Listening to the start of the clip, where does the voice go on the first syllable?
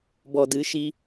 low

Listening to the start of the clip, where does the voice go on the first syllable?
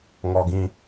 high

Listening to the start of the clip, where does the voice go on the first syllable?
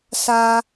high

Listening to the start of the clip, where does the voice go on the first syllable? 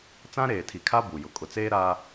high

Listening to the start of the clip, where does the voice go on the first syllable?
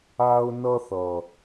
high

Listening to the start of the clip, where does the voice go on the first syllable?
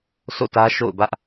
falling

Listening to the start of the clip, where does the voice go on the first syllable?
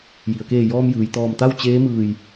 low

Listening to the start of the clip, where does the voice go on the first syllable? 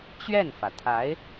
falling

